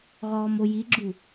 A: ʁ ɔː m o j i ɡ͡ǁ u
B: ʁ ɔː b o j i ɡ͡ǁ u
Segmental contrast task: A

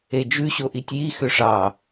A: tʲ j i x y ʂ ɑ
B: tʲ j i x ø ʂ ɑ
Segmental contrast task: B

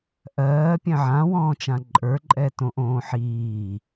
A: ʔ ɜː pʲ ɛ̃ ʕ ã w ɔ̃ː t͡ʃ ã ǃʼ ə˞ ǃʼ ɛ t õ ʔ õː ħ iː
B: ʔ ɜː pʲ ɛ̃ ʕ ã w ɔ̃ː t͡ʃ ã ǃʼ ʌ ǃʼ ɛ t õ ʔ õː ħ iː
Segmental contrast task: A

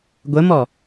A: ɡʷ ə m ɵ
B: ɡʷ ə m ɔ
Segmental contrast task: B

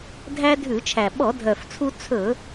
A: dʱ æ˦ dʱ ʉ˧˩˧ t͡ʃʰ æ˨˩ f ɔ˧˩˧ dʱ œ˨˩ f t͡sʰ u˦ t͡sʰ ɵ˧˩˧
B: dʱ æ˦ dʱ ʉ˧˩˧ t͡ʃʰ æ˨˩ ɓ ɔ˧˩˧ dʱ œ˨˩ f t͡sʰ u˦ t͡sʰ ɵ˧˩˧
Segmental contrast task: B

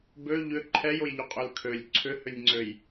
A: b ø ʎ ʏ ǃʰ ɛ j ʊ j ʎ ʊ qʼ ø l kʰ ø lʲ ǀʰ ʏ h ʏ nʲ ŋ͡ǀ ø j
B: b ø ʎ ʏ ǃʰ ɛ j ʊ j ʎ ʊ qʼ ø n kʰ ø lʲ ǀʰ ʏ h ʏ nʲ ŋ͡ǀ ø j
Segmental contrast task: A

